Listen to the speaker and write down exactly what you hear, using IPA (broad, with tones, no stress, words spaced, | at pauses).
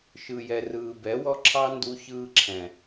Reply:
ʃɯ˨jɛ˨ rɯː˨bɛ˨˦wɔ˦ ǁʰɑ˦ ndu˧çɯː˧ǁʰɛ̃˨